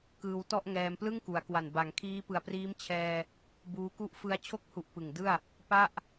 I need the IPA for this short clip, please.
kɯː˧wtɔ˥˩ʔ ŋɛː˧mplɯ˥˩ŋku˩˦a̯kwa˨˩n ba˩˦ŋ kʰiː˦˥pɯ˨˩a̯priː˦˥m t͡ɕʰɛː˧ | buː˦˥ku˥˩ʔ fɯ˧a̯t͡ɕʰo˦˥k̚hu˨˩ʔ pɯ˨˩ŋdɯ˥˩a̯ | pa˥˩ʔ

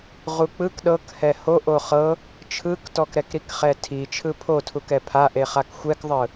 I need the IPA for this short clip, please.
ʁuk͡pɯk ɗɤk hɛho ʔoχɤ | t͡ʃʰɯktɔk ɾɛkɾikχɛtʰi t͡ʃʰɯpʰotʰukɛ pʰaʔeχak xʷɛkðˤɯ

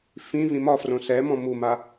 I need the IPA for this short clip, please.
fĩvĩ mɒfrõ sɛmɔ̃ muma

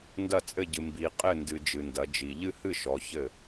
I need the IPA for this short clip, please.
ndɐ˥˨t͡sʼɘ˥˨ɟɨ˨ mbi˨ qʼɘ˥˨ndɨ˨ d͡ʒɨ˨ndɐ˨˦d͡ʒi˨ ʎɨ˥˨hɨ˥˨ ʃɔ˨˦ çɘ˥˨

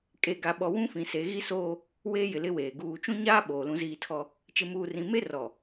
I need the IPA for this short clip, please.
kʼe˨ɡa˨ɓɔ˨ wũ˦fĩ˨ se˨˦ɣi˦soː˦ | weː˦jɪ˨lɪ˦weː˨ ɡuː˨t͡ʃũ˦ɲaː˦ ɓoː˨lũ˦ziː˦tʰɔ˦ | t͡ʃɪ˨muː˨rĩ˨me˦ rɔ˨

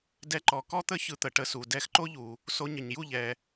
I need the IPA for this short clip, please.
dɛ˧ǃɔ˨kɔ˦t̪ə˦ çɯ˧t̪ə˨ʈə˧ su˨dɛ˧xǃo˦ʎu˨ | so˧ɲə˨ɲju˦˨ ʎɛ˨

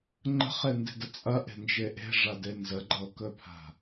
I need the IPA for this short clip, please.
ŋ͡ǃə̤χende̤də t͡sʼɐʔe̤nd͡ʒe ʔe̤ʐade nzəɡ͡ǃɤkɵpʰa̤

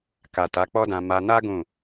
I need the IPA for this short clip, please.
ka˨ ta˨˦k͡pɔ˦dã˧ ma˧na˦ ɡũ˦˨

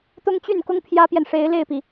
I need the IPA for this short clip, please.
t̪ʊ˥ŋt͡ɕy˥˩nkʊ˥ŋ pʰjä˥pjɛ˨n ʂe˧˥ɪ̯le˥˩ɪ̯pi˩

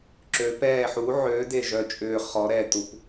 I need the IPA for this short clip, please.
ǁø˨˦pɛː˦˨ ħu˨˦ʕø˨˦ de˦˨ʒœ˦˨t͡ʃʼʏː˦˨ χɔ˨˦ɾɛ˦˨ tu˨˦p

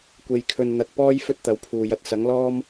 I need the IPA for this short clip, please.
kʷe˨jkʰɵ˨nn̪ɐ˨t̚ pɔː˥j fɵ˥t̚t̪ɐ˨˧wpʰuː˨jɐ˧t̚ sɐ˨˥ŋlɔː˥m

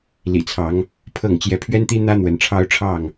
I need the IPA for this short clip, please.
lḭ˨˩t͡sʰɑ˨˦ŋ | pʰɤ˥˨ŋ t͡ɕjɛ˨˦pʰɥɛ˦nt̪i˦n̪ä˦ n̪wə˨˦nʈ͡ʂʰɑ˦ʊ̯ʈ͡ʂʰɑ˥˨ŋ

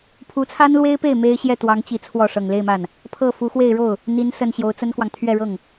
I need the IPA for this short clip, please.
pʰu˧˥t͡sʰa˥nlwe˥ɪ̯pe˥˩ɪ̯ me˥ɪ̯ ɕjɛ˥˩t̪wɑ˧˥ŋt͡ɕi˨˩ t͡sʰwɔ˥˩ ʂɤ˨˩ŋle˥˧ɪ̯ma˥˩n | pʰɤ˥˩fu˧˥ xwe˥˧ɪ̯ɻo˥˩ʊ̯ | n̪i˧˥nsə˨˩n ɕjo˧˥ʊ̯t͡sə˥nkwɑ˨ŋ t̪ʰɥɛ˥˧ɻɤ˥˩ŋ

